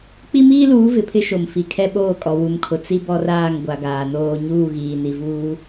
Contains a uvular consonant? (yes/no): no